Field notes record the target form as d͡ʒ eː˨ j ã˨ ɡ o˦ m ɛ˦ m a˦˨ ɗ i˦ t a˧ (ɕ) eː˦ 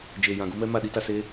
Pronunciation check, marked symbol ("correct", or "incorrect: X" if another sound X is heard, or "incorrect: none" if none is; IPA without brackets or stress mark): incorrect: s